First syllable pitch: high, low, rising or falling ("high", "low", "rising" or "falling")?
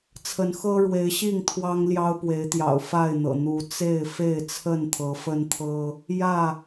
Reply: rising